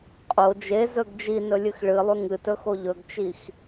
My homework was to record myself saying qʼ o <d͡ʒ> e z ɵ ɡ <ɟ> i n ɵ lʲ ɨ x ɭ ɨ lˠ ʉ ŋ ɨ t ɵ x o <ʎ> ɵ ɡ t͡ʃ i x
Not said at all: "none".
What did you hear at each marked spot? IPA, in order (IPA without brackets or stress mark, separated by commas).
d͡ʒ, d͡ʒ, ʎ